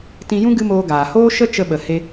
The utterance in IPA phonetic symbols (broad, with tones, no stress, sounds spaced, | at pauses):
t ĩ˧ j ũ˦ ɡ ɨ˦ m oː˧ ɡ aː˨ h oː˦ ʃ ə˦ t͡ʃ ə˧ ɓ ə˨ h e˧